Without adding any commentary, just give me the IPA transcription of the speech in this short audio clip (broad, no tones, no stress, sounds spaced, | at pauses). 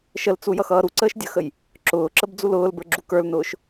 ʃ ə l t͡s u j ʌ x ʌː ɾ u ǀ əː ʃ dʲ ə x ə j | ǁ ʊː ǁ ə b d͡z u l ʊː l b ə˞ ɡ͡ǁ u k ə˞ l n ʊː ʃ